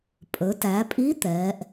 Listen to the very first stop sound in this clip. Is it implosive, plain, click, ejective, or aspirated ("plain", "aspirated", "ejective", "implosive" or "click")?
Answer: ejective